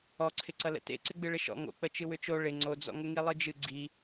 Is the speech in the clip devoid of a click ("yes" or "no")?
no